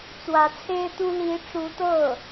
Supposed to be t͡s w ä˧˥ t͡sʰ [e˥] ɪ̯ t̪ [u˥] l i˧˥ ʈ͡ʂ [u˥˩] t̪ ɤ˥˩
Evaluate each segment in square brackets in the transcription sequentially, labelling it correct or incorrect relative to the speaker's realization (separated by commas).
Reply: correct, correct, incorrect